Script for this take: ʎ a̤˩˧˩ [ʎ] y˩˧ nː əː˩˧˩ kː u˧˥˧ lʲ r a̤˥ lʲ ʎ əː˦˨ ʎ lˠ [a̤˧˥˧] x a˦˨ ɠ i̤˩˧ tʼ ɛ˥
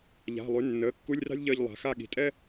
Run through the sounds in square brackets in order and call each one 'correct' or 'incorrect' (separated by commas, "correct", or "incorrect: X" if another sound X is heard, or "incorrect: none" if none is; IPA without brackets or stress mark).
incorrect: lˠ, incorrect: a̤˩˧